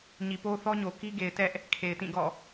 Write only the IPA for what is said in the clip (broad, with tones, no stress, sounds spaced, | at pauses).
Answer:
ɲ i˨ p o˦ θ ɔ˦ ɲ o˨ k i˦ ɡ e˨ ɪ̯ t ɛ˦ ʔ | kʰ e˨ ɪ̯ t ĩ˦˨ ɡ ɔ̰˦˨